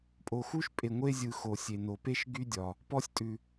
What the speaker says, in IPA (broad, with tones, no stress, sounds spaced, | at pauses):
pʼ o˨ x u˥ ʃ pʼ e˨ ŋʷ e˥ zʲ ɯ˨ x o˩ sʲ e˩ n o˩ p e˥ ʃ ɡ y˥ dʲ ɒ˩ | p ɔ˥ sʲ tʼ ʉ˨